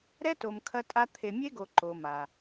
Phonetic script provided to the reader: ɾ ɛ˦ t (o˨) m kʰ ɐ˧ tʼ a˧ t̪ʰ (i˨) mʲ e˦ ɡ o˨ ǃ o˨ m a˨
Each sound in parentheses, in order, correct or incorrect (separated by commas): correct, incorrect